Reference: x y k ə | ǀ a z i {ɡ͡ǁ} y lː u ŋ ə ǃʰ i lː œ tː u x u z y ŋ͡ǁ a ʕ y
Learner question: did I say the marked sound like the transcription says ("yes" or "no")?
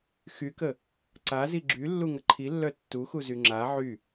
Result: yes